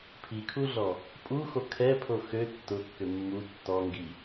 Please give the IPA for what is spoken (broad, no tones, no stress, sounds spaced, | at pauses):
pʰ i kʰ u ɮ ɔ | pʼ u x o kʰ ɛ pʰ o x ø tː ʊ kː ʏ mː u tː ɔ ŋ ɡ i